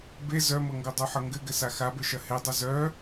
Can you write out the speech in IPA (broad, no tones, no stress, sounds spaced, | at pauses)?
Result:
b e z œ m ɤ ŋ ɡ o dˤ o ħ ɤ ŋ ɡ ɘ ɡ ɘ s a x a b ɘ ʃ ɐ h e dˤ ɘ z œ